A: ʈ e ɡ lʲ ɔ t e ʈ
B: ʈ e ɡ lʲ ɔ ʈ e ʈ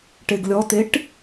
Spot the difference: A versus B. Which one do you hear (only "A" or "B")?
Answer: A